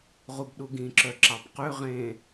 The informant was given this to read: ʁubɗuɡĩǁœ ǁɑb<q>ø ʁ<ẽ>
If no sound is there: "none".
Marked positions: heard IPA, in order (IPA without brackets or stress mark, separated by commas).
q, ẽ